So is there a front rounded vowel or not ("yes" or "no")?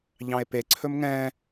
no